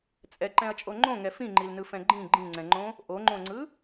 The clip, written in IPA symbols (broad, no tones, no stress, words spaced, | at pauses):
t͡sʼɛǃɛ̃ɐ̯t͡ʃʼo ŋ͡ǃõŋɛ fĩŋ͡ǃilnɯfɛ̃ ɡ͡ǃĩ ɡ͡ǃĩŋ͡ǀɛ̃ŋ͡ǃõ | ʔoŋ͡ǃõŋ͡ǀɯ